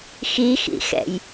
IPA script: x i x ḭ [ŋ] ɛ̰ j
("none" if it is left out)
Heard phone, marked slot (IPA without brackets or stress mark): x